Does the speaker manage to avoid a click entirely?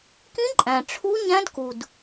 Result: no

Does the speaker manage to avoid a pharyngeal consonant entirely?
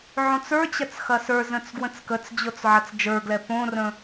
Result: no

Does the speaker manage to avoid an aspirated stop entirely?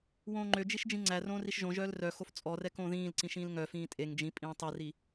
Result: yes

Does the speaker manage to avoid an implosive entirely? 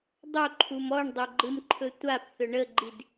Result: yes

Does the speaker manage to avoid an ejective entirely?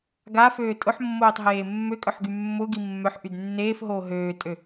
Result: no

